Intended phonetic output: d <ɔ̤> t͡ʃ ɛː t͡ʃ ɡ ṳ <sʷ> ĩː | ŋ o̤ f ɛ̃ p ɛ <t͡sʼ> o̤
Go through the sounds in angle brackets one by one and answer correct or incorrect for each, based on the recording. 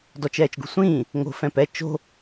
incorrect: ɔ, correct, incorrect: t͡ʃ

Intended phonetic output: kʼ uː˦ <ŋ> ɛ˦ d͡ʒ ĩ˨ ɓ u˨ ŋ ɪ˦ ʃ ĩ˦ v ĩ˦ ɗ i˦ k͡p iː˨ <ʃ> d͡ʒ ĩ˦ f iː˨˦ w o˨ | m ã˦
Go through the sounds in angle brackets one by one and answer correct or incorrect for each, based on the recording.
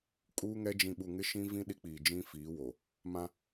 correct, incorrect: none

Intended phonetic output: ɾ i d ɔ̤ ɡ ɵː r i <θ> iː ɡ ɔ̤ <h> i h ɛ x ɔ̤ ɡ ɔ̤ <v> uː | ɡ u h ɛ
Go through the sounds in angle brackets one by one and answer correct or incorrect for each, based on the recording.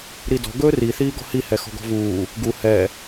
correct, correct, correct

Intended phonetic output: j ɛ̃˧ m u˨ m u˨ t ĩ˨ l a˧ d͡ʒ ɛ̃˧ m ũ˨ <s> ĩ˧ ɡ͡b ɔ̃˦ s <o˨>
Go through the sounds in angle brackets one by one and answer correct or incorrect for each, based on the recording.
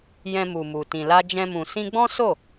correct, incorrect: o˦˨

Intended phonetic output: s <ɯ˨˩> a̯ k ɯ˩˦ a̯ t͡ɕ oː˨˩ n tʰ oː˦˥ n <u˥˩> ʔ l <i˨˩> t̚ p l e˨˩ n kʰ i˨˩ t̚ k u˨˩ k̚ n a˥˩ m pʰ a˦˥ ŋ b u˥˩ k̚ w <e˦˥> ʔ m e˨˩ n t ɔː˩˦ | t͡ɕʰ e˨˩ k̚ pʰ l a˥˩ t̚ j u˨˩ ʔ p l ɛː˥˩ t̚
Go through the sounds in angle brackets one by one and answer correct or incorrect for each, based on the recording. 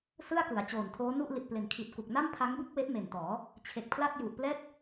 incorrect: ɯ˥˩, correct, correct, correct

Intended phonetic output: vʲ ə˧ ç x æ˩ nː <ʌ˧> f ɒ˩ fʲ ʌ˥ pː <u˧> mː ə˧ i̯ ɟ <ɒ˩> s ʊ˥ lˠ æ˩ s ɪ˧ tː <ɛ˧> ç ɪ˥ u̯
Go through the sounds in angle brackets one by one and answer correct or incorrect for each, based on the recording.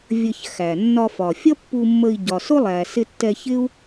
incorrect: ɒ˧, correct, correct, correct

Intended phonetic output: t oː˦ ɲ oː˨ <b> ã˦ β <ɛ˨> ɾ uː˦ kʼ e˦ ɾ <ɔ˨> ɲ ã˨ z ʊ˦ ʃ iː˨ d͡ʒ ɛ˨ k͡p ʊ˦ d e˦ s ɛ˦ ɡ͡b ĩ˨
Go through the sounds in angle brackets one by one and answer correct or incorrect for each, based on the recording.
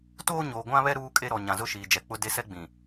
incorrect: ɡʷ, incorrect: ɛ˦, correct

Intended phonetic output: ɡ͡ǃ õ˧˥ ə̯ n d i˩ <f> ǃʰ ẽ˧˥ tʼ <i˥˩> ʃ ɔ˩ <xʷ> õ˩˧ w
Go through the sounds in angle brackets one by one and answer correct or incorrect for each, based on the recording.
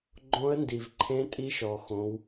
incorrect: v, incorrect: i˧˥, incorrect: x

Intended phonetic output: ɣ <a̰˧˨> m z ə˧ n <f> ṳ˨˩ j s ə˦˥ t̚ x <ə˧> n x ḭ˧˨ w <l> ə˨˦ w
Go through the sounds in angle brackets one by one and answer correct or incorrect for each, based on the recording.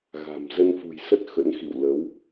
incorrect: a̤˨˩, correct, incorrect: ə̰˧˥, correct

